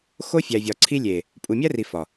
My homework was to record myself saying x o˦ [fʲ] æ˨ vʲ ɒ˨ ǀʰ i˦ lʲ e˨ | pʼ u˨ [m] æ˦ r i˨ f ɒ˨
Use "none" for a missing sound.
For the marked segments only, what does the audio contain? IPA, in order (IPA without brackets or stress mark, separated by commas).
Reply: fʲ, mʲ